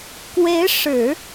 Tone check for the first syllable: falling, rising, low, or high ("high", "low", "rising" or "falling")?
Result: rising